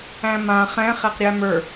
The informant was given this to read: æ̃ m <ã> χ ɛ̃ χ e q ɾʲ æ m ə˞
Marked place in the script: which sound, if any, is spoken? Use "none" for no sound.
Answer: ã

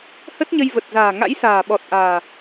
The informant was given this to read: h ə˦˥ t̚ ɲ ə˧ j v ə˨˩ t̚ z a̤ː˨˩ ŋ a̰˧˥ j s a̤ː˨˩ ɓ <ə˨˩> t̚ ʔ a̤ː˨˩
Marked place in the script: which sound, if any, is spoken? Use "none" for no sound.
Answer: ɔ˨˩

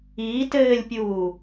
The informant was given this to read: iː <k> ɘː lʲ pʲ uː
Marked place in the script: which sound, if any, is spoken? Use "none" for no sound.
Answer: t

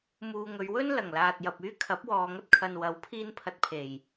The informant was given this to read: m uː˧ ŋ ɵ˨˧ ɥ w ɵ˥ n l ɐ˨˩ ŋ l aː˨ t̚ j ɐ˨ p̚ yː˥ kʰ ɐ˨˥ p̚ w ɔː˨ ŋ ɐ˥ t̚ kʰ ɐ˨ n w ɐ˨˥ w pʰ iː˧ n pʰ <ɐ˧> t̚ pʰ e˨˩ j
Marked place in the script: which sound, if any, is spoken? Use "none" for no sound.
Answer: ɐ˧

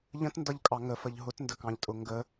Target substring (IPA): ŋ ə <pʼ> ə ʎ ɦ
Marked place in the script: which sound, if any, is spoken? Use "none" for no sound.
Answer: f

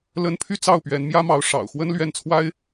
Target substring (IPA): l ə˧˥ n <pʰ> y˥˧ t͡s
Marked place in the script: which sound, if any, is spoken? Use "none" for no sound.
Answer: pʰ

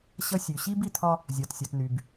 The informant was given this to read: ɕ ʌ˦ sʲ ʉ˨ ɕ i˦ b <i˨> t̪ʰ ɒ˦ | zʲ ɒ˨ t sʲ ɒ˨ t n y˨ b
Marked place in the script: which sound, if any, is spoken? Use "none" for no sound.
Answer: i˨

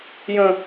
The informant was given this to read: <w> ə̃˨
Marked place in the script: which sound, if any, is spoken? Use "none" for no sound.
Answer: j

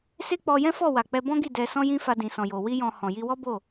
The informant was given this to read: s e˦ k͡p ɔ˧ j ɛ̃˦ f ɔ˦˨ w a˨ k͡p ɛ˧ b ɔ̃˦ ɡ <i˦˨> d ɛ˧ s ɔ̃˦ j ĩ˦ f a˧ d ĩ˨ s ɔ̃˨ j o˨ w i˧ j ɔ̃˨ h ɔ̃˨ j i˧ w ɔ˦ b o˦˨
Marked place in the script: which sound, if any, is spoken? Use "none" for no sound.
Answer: i˦˨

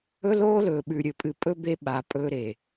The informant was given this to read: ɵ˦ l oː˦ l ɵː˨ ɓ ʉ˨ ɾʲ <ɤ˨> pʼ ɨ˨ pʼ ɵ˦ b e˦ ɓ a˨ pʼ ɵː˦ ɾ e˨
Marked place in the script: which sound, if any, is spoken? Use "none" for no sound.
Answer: ɵ˨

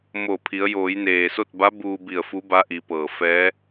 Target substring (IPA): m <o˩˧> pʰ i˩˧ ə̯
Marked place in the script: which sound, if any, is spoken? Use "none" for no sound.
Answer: o˧˩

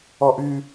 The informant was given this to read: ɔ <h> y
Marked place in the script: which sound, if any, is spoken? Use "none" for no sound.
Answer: ʔ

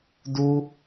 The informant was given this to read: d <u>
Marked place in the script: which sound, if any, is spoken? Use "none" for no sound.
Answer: u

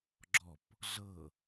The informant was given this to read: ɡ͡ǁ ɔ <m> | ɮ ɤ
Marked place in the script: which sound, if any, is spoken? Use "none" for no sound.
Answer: p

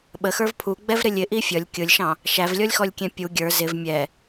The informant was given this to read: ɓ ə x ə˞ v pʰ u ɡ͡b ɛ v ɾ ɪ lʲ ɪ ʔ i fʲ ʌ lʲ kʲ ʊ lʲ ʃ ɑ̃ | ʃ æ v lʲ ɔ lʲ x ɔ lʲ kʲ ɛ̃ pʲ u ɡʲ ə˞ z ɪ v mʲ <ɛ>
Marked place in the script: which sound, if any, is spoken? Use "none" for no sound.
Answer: ɛ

